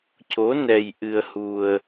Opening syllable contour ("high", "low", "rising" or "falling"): rising